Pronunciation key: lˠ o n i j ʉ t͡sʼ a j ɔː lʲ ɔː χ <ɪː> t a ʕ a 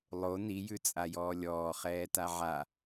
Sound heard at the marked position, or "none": ɛː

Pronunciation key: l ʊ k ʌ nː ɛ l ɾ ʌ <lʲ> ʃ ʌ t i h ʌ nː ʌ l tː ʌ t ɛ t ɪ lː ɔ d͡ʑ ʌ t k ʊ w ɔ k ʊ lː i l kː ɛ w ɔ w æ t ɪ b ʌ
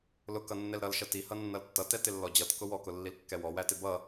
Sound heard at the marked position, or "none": l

